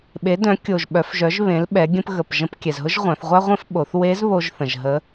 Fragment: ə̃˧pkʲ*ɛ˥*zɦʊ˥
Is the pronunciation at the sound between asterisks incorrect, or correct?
incorrect